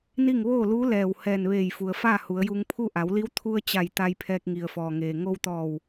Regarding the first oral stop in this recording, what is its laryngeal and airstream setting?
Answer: aspirated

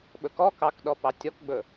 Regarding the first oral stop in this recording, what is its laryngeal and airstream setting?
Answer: implosive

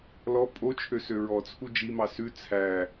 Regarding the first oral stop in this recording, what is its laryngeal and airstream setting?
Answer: ejective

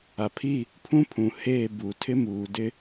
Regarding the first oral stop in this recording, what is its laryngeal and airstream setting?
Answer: aspirated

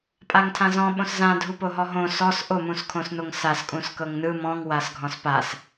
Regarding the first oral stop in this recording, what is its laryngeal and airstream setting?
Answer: ejective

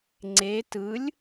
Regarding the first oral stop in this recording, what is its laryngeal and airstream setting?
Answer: click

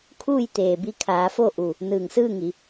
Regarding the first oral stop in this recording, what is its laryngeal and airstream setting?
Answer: aspirated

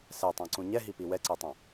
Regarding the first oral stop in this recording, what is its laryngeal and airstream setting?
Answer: plain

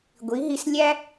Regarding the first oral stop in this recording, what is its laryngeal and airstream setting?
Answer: plain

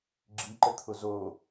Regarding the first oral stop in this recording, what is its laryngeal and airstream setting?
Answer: click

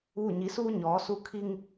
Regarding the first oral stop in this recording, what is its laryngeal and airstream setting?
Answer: aspirated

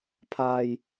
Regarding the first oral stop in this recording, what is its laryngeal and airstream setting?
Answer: aspirated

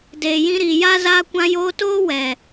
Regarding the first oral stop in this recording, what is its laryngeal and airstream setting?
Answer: plain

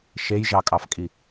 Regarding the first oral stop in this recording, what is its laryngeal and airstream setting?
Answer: ejective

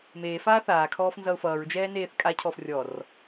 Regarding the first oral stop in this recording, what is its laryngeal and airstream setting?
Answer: aspirated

